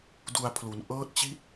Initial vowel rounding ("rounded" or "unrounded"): rounded